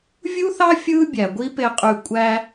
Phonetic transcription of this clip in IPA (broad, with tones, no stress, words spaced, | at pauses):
vʲu˦θɑ˦ fʲɯː˦bʲæ˨ɡʷi˦ pe˧qʼy˧ kʷʼæ˧